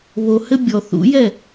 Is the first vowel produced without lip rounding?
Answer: no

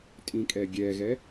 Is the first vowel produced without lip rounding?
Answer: yes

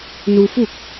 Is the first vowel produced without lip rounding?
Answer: no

